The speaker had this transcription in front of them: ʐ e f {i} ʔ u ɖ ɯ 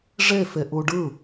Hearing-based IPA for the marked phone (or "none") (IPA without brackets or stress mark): e